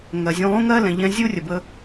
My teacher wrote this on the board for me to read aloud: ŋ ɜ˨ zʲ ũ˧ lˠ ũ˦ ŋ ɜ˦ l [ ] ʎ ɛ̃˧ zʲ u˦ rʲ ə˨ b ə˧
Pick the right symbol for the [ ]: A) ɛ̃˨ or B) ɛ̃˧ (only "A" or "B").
A